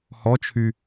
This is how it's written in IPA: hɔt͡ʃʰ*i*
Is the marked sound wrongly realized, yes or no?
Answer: yes